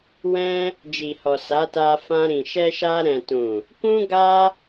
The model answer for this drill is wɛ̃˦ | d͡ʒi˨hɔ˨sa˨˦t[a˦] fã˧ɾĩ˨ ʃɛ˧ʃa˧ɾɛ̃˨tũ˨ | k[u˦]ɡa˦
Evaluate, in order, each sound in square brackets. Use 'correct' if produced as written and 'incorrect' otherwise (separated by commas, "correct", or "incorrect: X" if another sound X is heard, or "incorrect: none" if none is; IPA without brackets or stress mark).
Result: incorrect: a˧, incorrect: ũ˦